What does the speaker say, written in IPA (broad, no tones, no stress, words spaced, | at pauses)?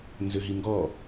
nzøɦiŋɡɔ